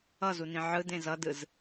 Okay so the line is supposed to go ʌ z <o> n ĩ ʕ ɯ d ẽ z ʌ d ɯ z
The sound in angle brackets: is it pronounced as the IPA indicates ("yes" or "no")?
no